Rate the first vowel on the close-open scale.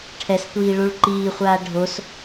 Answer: mid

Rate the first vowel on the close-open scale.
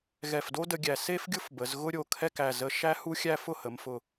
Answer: mid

